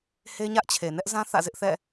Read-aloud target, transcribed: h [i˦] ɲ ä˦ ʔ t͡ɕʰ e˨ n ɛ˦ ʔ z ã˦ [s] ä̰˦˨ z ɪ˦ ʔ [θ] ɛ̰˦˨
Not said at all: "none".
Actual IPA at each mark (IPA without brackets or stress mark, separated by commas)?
e˦, θ, θ